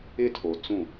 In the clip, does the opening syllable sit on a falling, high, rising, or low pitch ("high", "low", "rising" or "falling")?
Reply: high